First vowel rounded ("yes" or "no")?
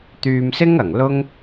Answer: yes